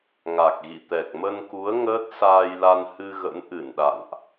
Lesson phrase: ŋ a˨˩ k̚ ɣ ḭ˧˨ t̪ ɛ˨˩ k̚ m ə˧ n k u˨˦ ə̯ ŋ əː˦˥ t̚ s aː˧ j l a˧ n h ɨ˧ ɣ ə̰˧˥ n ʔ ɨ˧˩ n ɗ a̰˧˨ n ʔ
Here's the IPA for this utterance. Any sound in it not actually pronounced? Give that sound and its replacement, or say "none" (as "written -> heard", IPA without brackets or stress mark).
none